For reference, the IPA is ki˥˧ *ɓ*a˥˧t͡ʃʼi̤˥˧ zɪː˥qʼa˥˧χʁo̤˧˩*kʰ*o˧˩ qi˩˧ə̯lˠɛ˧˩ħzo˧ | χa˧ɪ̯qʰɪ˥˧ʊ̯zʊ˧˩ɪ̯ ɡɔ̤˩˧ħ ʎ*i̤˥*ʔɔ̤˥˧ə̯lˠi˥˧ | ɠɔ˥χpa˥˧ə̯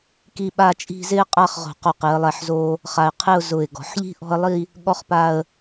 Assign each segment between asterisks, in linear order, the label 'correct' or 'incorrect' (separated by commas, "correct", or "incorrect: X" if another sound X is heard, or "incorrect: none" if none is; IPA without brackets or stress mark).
correct, incorrect: q, correct